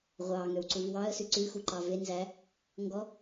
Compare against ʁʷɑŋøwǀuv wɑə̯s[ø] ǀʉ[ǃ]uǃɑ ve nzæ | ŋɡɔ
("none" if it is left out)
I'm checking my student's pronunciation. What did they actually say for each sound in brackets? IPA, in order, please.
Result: ʉ, x

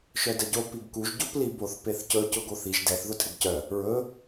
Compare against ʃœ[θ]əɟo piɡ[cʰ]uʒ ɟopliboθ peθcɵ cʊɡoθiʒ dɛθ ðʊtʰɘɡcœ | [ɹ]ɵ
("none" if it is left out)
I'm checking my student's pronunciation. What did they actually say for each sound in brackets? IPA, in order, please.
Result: d, k, ɹ

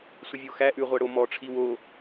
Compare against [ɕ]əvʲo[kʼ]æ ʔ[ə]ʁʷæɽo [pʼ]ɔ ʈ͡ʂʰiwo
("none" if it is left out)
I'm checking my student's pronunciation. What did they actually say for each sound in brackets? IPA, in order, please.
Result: sʷ, x, ʉ, m

